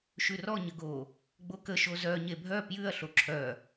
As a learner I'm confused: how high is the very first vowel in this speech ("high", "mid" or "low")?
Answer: high